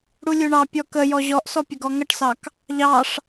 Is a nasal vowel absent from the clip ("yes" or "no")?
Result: yes